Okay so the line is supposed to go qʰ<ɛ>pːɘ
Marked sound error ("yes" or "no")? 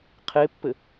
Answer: yes